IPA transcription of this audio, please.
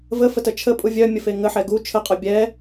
v ə f ə t ə t͡ʃʰ ə pʼ u vʲ œ mʲ ə f e ŋ ə ħ ɛ ɡ u t͡ʃʰ ə qʼ œ bʲ ɛ

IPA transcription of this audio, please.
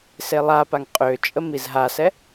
s e lˠ a p a ŋ qʼ ø t͡ʃʼ ə m i z ɦ a s ɛ

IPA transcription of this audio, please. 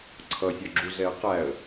ǀʰ ʌ sʲ ɔ ɡ͡ǁ u ɮ ɛ ə̯ q æ ə̯

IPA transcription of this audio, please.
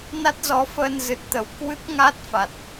n a˦˥ t̚ z ɔ˨˦ f əː˧ n z ɨ˨˩ t̚ t̪ ə˨˩ w k w ɨ˦˥ k̚ ŋ a˦˥ t̚ f a˨˩ t̚

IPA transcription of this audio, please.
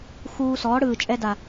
x uː˧ s ɔː˨˦ ɽ ɯː˨ t͡ʃʼ ɛ˧ d a˨

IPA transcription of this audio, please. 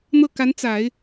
n̪ ɤ˥˩ k a˧˥ n t͡s a˨˩˦ ɪ̯

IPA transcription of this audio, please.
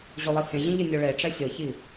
ʑ o lˠ i h ẽ ʑ ĩ ʎ ə nʲ o ɭ e ʈ͡ʂ ɛ sʲ ɤ ç i

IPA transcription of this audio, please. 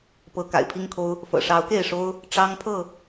p ɤ˨˦ k a̰˨˩ ɪ̯ pʰ i˦ ŋ kʰ o˦ ʊ̯ | f ɤ̰˨˩ ʂ ɑ˨˦ ʊ̯ k e˥˨ ɪ̯ ʂ o˦ ʊ̯ | ʈ͡ʂ ɑ˦ ŋ pʰ ɤ˥˨

